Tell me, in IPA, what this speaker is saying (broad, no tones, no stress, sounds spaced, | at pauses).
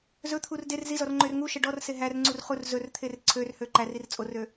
z ɵ t̪ʰ u r d e r z i z ɔ r ŋ͡ǃ ø r ŋ u ʃ ɛ ɖ ɔ r s e ɦ æ r ŋ͡ǀ u r χ u r z ɵ r t̪ʰ e r ǀʰ ø r h ø ǃ æ r i r t͡sʼ o r ø